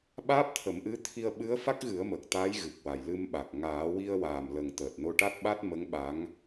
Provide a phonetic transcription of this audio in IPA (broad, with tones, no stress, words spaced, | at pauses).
ɓaː˦˥p̚t̪ʰə˨˩˦mʔɨ˧˥t̪ʰi˧ə̯ ɓɨ˧˥ə̯ fa˦˥k̚ɣɨ˨˩˦ə̯mə˨˩k̚ t̪a˧˥jɣɨ˨˩k̚wa˨˩j lɨ˧mɓa˨˩k̚ ŋaː˨˩˦wi˧ə̯waː˨˩mlə˨˩ŋ t̪əː˨˩t̚no˧ʈa˦˥t̚ɓa˦˥t̚ mə˧˥ŋɓa˧˥ŋ